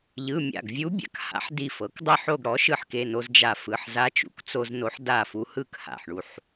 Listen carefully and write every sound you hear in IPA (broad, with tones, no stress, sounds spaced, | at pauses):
ʎ ɯ˩˧˩ mʲ a̰˧˩ ɡ vʲ u˧˥ bʲ a̰˩˥ k h a̰˧˥ ħ d i˧˩ f ɤ˩˥ k dˤ ɤ˥˨ ħ o˥˨ ɡ ɽ ɔ˩˥ ʃ ɯ˧ ħ k e˩˧˩ n o˧ z d͡ʒ a˧˩ f ɯ˩˧˩ ħ z a˧˥ t͡ʃ ṵ˧˩ k t͡s o˧ z n o˧˥ ħ d a˥˨ f u˧ h ɯ˥˨ k h a̰˧˩ ħ ɳ u˧˩ ħ